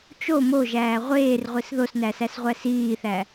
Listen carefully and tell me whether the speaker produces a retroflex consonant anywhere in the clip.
no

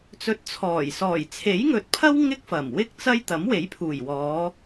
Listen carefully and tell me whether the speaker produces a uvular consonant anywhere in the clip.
no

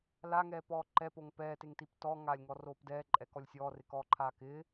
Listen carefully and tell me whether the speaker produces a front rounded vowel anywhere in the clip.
no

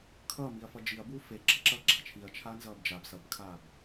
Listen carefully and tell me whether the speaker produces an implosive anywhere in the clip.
no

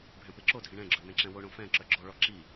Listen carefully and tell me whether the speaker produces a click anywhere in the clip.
yes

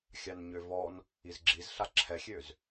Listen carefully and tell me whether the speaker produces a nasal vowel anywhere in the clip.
no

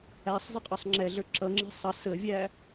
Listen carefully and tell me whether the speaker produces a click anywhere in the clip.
yes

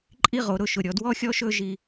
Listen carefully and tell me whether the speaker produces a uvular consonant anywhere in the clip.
yes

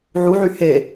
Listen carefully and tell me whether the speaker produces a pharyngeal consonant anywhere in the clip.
yes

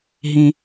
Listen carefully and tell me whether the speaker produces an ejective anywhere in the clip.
no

